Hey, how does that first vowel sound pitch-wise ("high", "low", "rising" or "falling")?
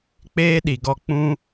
high